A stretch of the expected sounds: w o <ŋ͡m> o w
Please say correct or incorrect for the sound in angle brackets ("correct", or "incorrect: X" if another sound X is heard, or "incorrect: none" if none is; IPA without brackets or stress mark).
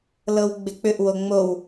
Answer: correct